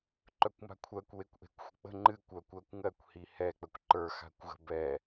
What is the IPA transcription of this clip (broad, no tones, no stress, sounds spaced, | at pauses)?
ǃ œ kʷ m a̤ kʷʰ ɜ kʷ w e kʷ ʔ e̤ kʷ xʷ ə̤ k͡p ə̤ ŋ͡ǃ ɨ kʷ œ kʷ ɜ kʷ ŋ ɜ kʷ h i h ɛ k͡p ə kʷ ǃ ə˞ x a̤ kʷ ɣ ə̤ b ɛ